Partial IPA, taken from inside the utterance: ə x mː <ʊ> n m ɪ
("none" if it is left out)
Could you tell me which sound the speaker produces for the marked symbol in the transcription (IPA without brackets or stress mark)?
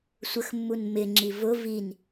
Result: u